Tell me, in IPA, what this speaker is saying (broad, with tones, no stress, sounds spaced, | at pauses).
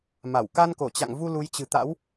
m a˧˩ w k a˧ n k o˧˩ t͡ɕ a̰˧˨ ŋ v u˧ l u˨˦ j t͡ɕ ɨ̤˨˩ t̪ a̰˧˥ w